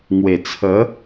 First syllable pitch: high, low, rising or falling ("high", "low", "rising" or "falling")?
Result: low